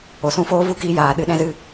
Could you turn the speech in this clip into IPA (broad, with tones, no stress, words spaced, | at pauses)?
o˨sũ˧foː˦vu˦ kiː˧jaː˨ ɗɨ˧ɗɛ̃˦zɨ˦